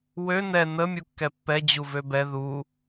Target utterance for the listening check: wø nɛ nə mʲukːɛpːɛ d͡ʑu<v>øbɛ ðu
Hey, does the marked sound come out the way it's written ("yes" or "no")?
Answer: yes